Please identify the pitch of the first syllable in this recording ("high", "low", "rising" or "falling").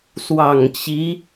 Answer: low